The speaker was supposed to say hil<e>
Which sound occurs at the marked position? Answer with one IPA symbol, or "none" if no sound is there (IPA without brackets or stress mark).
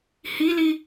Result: i